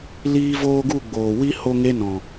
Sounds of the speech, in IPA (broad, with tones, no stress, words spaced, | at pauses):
liː˦voː˦ ɡu˦˨ɡ͡boː˨wi˦ ho˦ŋe˦nɔ̃˨